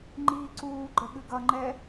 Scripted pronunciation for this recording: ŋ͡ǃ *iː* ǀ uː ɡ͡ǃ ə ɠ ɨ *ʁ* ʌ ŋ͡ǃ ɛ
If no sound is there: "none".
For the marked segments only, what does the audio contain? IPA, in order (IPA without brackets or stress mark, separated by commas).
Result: iː, ɡ